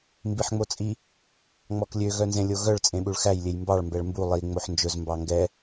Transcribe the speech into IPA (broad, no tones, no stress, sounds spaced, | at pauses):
m b i ħ ŋ͡m o t͡sʼ i | ŋ͡m ɔ k lʲ ø ɣ œ n z ẽ lʲ o ɣ œ ɭ t͡sʼ ẽ ɓ u ɭ x æ j lʲ e j m b ɑ ɭ m b ɛ ɭ m b u lˠ i ŋ͡m o ħ n d͡ʒ ɵ z m b ɑ ŋ ɡ ɛ